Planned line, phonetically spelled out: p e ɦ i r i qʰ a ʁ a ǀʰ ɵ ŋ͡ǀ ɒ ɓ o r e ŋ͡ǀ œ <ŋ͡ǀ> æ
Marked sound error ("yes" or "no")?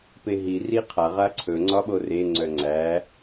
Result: no